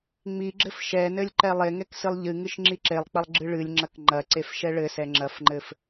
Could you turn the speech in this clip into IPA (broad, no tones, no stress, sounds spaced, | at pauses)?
ŋ͡m i ɡ͡ǁ ɘ f ʃ ɛ n ɘ lʲ ǃ ɛ lˠ e ŋ ɛ k s ɨ lˠ ʎ ɨ ŋ ɨ ʃ ŋ͡ǁ i ǁ e lˠ k͡p ɐ lˠ ɡ͡ǁ ɨ ɭ ɨ lʲ ŋ͡ǁ ɐ k ŋ͡ǃ ɐ ǀ e f ʃ ɛ ɭ ɘ s ɛ ŋ͡ǁ ɐ f ŋ͡ǃ ɘ f